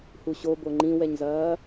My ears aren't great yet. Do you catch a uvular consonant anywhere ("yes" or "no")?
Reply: no